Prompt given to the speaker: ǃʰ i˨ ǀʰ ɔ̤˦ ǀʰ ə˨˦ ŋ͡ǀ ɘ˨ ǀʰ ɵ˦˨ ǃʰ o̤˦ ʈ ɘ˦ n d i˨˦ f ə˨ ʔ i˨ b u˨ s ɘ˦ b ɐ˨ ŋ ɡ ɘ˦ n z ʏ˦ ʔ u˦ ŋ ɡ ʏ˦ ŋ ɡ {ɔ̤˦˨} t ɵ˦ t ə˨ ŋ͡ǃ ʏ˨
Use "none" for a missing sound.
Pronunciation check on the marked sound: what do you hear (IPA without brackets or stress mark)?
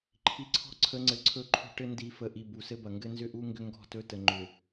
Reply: ɔ̤˦˨